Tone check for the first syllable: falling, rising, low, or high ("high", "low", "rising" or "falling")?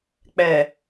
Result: low